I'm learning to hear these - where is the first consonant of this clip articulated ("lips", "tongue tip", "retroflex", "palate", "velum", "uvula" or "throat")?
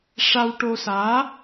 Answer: retroflex